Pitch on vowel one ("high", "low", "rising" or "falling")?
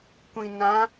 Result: low